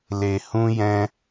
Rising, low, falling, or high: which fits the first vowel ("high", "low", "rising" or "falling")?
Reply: low